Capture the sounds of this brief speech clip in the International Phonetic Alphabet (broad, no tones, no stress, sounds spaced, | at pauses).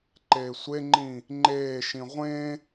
ǃ eː sʷ e ŋ͡ǃ ĩ | ŋ͡ǃ eː ʃ ĩ ʁʷ ẽ